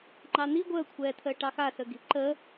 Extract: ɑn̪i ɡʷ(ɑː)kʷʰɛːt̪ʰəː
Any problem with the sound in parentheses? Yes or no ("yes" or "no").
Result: yes